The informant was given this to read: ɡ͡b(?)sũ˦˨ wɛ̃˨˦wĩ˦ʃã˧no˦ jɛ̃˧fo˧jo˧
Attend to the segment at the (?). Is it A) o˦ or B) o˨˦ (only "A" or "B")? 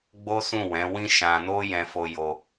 A